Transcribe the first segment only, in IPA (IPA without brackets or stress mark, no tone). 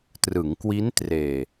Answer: t